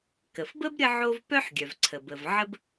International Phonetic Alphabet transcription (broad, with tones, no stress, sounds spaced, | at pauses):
k ə˩ f b ə˥ b ɾʲ ə˥ ʕ o˥ v p œ˥ ħ ɡʲ œ˩ v ǀʰ ə˩ b ə˩ v ʕ ə˥ b